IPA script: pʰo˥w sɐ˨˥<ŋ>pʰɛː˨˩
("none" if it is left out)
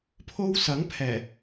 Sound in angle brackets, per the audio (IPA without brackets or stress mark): ŋ